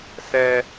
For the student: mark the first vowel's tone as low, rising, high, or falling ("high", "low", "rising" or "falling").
high